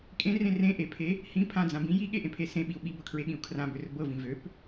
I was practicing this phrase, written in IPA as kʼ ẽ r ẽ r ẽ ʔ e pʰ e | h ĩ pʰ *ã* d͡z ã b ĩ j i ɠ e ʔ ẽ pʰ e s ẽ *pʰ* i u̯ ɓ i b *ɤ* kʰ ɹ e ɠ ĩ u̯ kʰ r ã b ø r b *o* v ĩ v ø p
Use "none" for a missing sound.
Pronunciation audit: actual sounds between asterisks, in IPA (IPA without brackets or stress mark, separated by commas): ã, ɓ, ɤ, ɤ